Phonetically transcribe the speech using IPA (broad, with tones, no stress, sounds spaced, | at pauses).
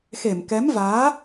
x e˧˩ m k ɛ˨˦ m v aː˨˦